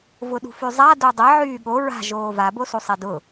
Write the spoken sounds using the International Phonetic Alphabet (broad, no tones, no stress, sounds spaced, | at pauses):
v ʊ ɗ ṳ f y zˤ a d o dˤ ɛ ʕ yː ɠ o ɹ a̤ ʒ oː v a b o s u sˤ ɛ d ʊ